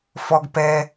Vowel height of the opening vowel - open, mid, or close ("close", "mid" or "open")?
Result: mid